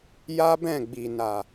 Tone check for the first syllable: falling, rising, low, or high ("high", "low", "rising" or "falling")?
high